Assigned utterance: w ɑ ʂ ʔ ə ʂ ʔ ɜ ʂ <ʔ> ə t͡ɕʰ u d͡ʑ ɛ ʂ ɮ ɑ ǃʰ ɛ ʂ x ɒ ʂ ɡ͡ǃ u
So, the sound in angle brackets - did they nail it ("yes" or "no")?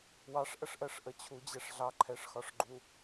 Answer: yes